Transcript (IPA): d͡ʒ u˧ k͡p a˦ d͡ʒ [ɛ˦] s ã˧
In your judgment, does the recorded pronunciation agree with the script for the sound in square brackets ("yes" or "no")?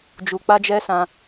yes